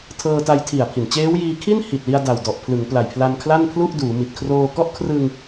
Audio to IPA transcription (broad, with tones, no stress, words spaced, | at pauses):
tʰɤː˧ta˧jtʰi˨˩a̯ pʰi˨˩nt͡ɕeː˦˥w jiː˧kʰi˥˩nhi˨˩t̚li˧a̯ da˨˩wdɔ˨˩ʔ pʰlɯ˩˦ŋ pla˨˩jpʰla˧n kʰla˥˩npʰlu˥˩ʔduː˩˦ mi˨˩t̚kʰroː˧kɔ˥˩ʔ kʰrɯ˧ŋ